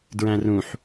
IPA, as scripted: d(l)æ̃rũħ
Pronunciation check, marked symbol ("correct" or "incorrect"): incorrect